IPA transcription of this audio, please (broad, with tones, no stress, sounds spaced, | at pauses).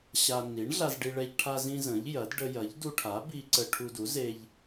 ɕ a˧ n i˩˥ ɳ ɮ a˧ z ɖ i˧ ɭ ɛ˧ ʎ ʈʰ a˧ z ĩ˧ z ə̃˩˥ ʎ j ɐ˩˥ d ɖ ə˧ j ɐ˩˥ ʎ d u˧ ʈʰ a˩˥ b i˧ ǀ ə˧ ʈʰ u˧ d u˩˥ z e˧ ʎ